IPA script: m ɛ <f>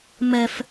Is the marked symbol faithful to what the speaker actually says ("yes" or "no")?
yes